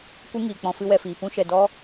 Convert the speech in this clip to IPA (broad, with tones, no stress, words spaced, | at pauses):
kʷɨ˦ŋiː˨ k͡pɔ̃˧fɨ˦wɛ˧fiː˨ pũ˧ʃɛ˨ dɔ˦